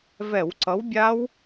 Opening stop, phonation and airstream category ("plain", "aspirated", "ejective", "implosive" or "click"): click